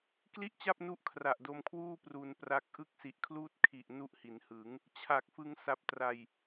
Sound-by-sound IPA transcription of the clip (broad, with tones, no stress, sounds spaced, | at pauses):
k l i˥˩ ʔ t͡ɕ a˥˩ p̚ n u˦˥ ʔ kʰ r a˨˩ ʔ d o˧ m kʰ w uː˥˩ p r u˧ n p r a˦˥ k̚ ʔ ɯ˥˩ k̚ s i˨˩ ʔ kʰ l uː˥˩ t̚ kʰ i˨˩ ʔ n u˦˥ ʔ h i˩˦ n h ɯ˩˦ ŋ | t͡ɕʰ a˨˩ k̚ f ɯ˧ ŋ s a˨˩ p̚ t r a˨˩ j